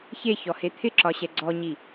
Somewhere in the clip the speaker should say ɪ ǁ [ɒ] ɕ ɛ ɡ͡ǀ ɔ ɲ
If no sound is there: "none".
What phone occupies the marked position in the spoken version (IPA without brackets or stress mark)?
ɒ